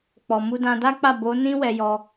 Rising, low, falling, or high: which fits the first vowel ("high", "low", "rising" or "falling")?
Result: low